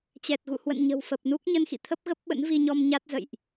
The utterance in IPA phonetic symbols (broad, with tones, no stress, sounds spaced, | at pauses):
t͡ɕ ɛ˨˩ t̚ ɣ ṵ˧˨ h w ə̰˧˨ n ɲ ə̤˨˩ w f ə˨˩ p̚ n u˦˥ k̚ ɲ ə˧ n x ḭ˧˨ t̪ʰ ə˦˥ p̚ ɣ ə˦˥ p̚ ɓ ə̰˧˥ n v i˧ ɲ ɔ˧ m ɲ a˦˥ t̚ z ə̰˧˨ j ʔ